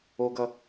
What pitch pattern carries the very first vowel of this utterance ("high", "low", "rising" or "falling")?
high